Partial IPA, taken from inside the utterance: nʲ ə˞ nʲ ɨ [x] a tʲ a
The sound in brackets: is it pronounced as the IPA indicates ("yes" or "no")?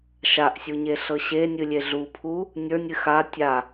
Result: yes